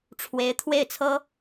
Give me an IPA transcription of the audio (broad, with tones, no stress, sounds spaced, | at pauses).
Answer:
ʈ͡ʂʰ w e˧˥ ɪ̯ t̪ʰ w e˥˩ ɪ̯ t͡sʰ ɤ˥